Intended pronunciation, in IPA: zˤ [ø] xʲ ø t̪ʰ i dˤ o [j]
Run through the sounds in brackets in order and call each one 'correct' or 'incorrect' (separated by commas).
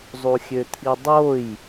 incorrect, correct